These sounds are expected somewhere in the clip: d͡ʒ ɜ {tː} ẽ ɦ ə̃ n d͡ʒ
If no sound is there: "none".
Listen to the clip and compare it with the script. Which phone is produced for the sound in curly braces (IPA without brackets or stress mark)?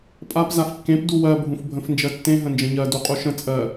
tː